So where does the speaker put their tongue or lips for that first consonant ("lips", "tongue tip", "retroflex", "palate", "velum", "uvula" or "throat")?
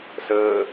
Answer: tongue tip